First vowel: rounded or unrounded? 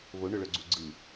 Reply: rounded